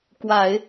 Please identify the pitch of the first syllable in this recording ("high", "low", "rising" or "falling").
low